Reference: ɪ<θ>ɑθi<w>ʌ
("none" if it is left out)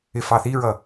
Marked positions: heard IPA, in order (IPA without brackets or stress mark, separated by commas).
f, ɹ